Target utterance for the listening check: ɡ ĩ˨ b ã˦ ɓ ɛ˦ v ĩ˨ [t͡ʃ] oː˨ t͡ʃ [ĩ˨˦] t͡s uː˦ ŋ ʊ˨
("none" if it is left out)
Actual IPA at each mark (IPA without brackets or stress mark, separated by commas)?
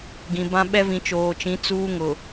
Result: t͡ʃ, ĩ˨˦